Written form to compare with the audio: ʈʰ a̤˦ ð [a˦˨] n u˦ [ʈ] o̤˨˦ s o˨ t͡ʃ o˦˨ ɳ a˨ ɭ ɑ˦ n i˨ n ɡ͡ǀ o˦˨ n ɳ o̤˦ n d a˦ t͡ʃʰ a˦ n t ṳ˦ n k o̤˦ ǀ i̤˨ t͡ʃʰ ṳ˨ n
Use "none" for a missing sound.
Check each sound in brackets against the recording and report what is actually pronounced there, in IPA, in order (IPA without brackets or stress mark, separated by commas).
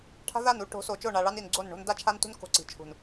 a˦˨, ʈ